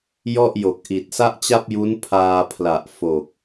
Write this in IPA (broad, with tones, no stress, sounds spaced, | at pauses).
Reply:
j ɔ˥˩ ʔ j o˨˩ k̚ ʔ i˨˩ t̚ s a˥˩ ʔ t͡ɕ a˥˩ p̚ j u˦˥ n pʰ aː˧ pʰ l a˨˩ ʔ f o˨˩ k̚